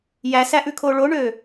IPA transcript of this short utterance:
jæsæʔʉkʰo ɭoɳø

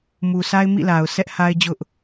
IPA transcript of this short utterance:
mu˨sa˦ɪ̯ mḭ˦˨la˨ʊ̯ sʰɛ˦ʔ ha˦ɪ̯d͡ʑʊ˦ʔ

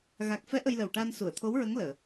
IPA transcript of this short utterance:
ɣa˨˩k̚fɛ˧˥ ʔə˧jlə˨˩w ʈaː˧nsu˨˩˨ə̯t̪ʰo˧˥wɹə˧˥ŋ ləː˨˩˨

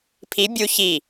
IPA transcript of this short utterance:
pʰi bʲu çi

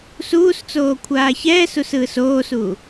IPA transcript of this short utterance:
suːst͡soː kʷʰaːçɛːsus ɯːsoːsu

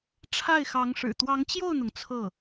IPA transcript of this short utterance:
ʈ͡ʂʰa˥˩ɪ̯xɑ˧˥ŋʂɻ̩˨˩ t̪wɑ˧˥ŋt͡ɕjo˥˩ʊ̯n̪ʊ˩ŋ t͡sʰɤ˥˩

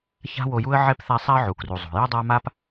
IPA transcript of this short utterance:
ça̤˦wo˨ju˦ə̯ ʕɛ˥pθa˦sˤa˥ə̯ ʕu˩kru˩zˤo̤˩ jʌ˥dˤa˦ ma˥p

